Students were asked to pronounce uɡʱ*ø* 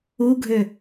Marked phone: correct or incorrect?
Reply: correct